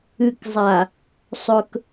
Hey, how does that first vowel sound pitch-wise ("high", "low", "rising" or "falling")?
low